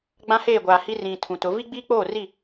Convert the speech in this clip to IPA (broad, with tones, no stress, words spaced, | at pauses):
ɡ͡bã˦heː˦˨ɡʷaː˨hi˦ rĩ˨ tʰũ˨tʊ˨˦ vi˦ɡ͡biː˦k͡poː˦˨ri˦˨